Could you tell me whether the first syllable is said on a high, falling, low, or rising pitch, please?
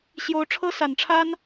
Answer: rising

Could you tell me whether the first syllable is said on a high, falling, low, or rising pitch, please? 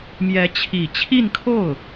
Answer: rising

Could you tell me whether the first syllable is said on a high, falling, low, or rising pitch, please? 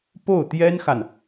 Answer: falling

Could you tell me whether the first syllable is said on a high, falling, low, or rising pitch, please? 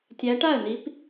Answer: rising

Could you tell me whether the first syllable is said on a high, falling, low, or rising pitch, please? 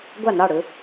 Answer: falling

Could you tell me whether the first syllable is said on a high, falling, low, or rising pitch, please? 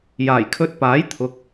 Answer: low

